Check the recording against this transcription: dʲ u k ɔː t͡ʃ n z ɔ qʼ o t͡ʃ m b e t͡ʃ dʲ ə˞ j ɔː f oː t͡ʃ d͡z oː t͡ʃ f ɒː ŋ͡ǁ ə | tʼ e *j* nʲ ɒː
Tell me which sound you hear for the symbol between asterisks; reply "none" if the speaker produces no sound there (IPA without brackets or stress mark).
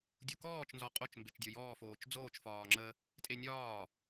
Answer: none